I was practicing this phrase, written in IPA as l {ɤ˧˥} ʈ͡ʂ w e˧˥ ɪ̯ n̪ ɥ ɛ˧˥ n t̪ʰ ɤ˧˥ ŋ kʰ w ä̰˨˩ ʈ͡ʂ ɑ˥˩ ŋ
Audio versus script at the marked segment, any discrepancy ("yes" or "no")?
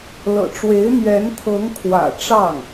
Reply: yes